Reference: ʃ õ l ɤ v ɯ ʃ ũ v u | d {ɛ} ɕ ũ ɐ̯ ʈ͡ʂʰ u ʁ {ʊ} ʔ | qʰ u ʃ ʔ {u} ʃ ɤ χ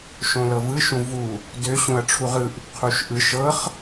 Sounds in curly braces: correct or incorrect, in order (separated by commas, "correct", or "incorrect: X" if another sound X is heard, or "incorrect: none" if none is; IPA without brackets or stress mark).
incorrect: ø, incorrect: ɯ, incorrect: ɯ